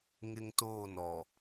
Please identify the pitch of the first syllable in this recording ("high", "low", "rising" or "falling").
high